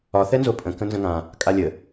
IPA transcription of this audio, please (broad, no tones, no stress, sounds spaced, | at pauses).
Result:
ɒ θ ɛ n z o pʼ ə̃ k ə̃ n z ə̃ ŋ ã | kʼ a lʲ ə